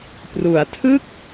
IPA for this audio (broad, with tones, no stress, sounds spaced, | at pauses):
p r u˩˦ a̯ tʰ ɯ˥˩ k̚